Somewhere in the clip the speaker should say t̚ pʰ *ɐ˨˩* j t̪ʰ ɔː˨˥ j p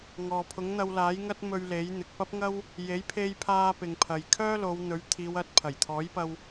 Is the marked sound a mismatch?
no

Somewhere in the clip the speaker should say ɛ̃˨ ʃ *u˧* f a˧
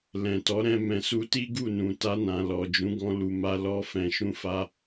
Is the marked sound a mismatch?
yes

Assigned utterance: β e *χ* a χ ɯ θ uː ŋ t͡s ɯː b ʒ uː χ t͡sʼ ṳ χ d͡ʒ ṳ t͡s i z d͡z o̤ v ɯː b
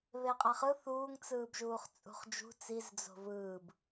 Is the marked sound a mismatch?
yes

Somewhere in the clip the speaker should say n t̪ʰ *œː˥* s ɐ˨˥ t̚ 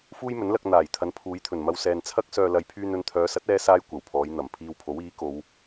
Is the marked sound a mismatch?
yes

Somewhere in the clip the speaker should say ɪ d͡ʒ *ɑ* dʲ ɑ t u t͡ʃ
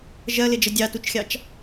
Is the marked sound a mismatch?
yes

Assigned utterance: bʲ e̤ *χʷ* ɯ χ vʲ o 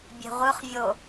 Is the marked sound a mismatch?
yes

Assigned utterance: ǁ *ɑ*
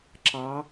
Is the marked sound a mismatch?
no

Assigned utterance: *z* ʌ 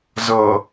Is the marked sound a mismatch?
no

